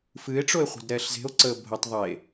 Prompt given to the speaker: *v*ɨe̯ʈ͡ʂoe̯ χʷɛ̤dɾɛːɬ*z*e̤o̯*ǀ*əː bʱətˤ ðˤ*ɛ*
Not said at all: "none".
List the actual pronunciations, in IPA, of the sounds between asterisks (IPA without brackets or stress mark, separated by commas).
f, z, ǀ, e